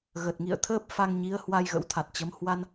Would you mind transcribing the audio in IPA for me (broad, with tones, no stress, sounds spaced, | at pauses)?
ɣ ə˨˩ t̚ ŋ ḭ˧˨ ə̯ t̪ʰ əː˦˥ p̚ f a˧ ŋ ɲ i˨˦ ə̯ h w a˧ j ɣ ə̰˧˥ w t̪ʰ a˨˩ t̚ t͡ɕ ə˨˦ m h w a˧ n